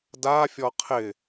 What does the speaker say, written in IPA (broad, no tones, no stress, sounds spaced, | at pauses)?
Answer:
d a fʲ ɔ qʰ ɪ